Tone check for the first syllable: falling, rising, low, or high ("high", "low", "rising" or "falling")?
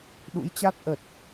rising